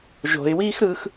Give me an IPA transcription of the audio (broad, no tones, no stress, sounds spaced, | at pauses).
ʒ o̤ ɪ̯ w iː x ɾ ɯː x